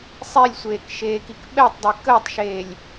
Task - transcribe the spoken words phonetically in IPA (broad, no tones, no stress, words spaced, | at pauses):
sˤilʲsʷeːk ʃeːkikɓɛtˤdˤe kəːtˤʃeːlʲ